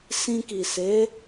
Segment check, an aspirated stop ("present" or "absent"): absent